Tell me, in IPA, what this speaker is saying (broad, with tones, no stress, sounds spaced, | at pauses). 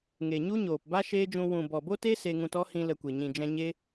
ŋ e˨ ɲ u˦ ɲ oː˨ p b a˦ ʃ eː˦ d͡ʒ ũ˧ w ũ˨ b ɔ˨ b o˦ t e˦ s e˧ ŋ ũ˧ t ɔ˦ h ĩ˧ l ə˧ kʷ e˨ ɲ ĩ˨ d͡ʒ ɛ̃˧ ɲ e˦